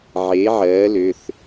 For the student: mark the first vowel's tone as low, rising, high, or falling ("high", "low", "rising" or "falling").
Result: rising